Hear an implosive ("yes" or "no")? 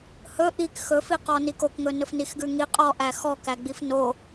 no